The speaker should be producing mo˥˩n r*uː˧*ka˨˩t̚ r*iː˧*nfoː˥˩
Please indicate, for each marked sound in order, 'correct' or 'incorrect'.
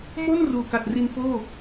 incorrect, incorrect

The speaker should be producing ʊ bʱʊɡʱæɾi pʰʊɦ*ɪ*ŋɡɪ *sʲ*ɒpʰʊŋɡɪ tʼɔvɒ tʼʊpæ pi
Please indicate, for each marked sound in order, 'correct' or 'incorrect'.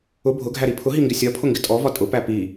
incorrect, correct

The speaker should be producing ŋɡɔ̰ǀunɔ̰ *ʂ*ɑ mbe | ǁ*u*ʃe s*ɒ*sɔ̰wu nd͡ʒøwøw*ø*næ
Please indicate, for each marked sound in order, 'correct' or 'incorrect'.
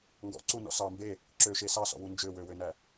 incorrect, incorrect, incorrect, correct

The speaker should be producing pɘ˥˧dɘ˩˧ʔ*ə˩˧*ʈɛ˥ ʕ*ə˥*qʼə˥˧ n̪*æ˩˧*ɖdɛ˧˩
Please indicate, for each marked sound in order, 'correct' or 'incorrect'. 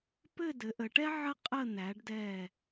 correct, correct, correct

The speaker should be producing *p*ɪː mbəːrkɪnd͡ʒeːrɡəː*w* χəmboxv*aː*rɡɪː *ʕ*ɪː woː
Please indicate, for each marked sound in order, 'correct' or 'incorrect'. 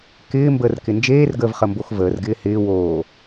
incorrect, incorrect, incorrect, incorrect

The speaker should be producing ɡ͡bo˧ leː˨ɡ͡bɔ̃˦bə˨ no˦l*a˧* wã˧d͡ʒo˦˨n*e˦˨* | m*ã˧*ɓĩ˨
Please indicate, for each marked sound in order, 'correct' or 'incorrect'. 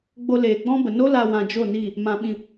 correct, incorrect, incorrect

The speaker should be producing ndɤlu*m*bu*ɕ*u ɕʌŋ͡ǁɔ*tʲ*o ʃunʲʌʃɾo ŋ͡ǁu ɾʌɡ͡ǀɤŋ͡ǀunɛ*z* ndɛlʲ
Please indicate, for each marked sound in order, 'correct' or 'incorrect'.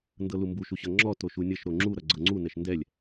correct, incorrect, incorrect, incorrect

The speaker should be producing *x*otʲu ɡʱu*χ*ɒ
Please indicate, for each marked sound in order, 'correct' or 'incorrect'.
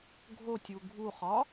incorrect, correct

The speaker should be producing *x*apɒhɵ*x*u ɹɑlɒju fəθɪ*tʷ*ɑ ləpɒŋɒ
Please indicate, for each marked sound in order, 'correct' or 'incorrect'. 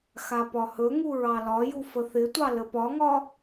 correct, incorrect, correct

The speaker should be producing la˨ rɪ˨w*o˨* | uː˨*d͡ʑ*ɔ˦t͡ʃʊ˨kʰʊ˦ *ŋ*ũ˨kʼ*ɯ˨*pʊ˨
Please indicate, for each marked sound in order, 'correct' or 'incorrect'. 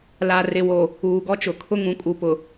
correct, incorrect, correct, incorrect

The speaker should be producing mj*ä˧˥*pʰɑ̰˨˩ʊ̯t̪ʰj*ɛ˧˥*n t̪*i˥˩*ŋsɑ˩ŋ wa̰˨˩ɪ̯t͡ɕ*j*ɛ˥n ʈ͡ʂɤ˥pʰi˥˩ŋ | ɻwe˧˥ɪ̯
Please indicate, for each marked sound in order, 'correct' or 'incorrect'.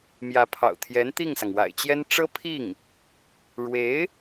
correct, correct, correct, correct

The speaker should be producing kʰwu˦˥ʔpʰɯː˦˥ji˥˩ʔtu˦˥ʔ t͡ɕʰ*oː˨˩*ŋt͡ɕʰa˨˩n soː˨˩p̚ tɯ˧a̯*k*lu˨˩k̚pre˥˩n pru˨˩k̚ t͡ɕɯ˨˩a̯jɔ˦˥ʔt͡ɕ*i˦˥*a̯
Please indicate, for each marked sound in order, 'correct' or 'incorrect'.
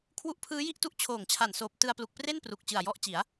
correct, incorrect, incorrect

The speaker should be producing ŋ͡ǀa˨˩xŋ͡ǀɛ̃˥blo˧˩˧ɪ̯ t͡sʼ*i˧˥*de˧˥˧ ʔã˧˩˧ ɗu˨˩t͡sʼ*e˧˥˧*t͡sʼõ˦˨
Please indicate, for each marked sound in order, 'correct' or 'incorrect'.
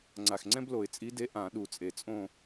correct, incorrect

